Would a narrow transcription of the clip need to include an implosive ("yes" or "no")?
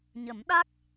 yes